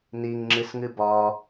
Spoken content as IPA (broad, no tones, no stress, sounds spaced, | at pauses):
n i ŋ ŋ͡ǁ ɨ s ŋ ɨ b ɒ